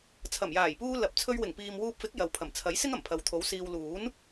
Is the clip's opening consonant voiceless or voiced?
voiceless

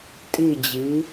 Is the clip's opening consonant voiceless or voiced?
voiceless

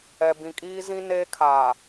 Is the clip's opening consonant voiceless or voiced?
voiced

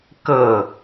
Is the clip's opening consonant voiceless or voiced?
voiceless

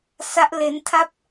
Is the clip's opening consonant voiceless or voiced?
voiceless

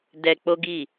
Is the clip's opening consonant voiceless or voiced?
voiced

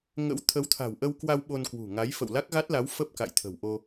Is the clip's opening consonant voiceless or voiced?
voiced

